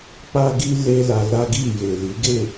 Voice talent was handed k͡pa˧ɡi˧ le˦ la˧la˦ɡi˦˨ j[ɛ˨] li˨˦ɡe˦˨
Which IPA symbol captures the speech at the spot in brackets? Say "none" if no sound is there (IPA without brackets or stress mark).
e˨